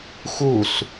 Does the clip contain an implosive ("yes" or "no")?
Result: no